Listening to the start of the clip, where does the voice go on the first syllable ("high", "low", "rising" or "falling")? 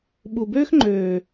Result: low